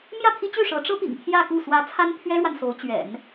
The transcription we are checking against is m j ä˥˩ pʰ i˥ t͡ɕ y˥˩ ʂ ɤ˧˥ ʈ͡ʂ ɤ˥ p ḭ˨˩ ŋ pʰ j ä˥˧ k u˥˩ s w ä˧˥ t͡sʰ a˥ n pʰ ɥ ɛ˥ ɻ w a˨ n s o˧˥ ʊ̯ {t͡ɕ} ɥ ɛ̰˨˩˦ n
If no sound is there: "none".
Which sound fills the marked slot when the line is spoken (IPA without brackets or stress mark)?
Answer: t͡ɕ